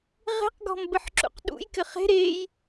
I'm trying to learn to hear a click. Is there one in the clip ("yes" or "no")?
yes